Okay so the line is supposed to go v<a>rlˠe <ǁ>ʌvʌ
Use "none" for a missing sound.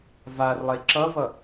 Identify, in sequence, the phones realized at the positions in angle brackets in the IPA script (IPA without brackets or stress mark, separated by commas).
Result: a, ǁ